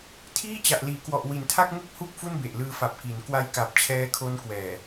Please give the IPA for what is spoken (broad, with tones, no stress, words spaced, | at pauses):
tʰiː˥˩t͡ɕa˨˩ʔ liː˩˦kwɔ˨˩ʔwi˩˦ntʰa˥˩k̚ ŋu˥˩k̚hu˥˩k̚ fu˥˩nbe˨˩ʔlɯː˧ fa˨˩p̚ki˩˦n kwa˧jka˨˩p̚t͡ɕʰɛː˦˥kʰo˦˥n kwɛː˨˩